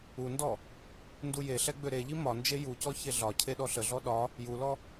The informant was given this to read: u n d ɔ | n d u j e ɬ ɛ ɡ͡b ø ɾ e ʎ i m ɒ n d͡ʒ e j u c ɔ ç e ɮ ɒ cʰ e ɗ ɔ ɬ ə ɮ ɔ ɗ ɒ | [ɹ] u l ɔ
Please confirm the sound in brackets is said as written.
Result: no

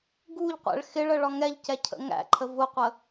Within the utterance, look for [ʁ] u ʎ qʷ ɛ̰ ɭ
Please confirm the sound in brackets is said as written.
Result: no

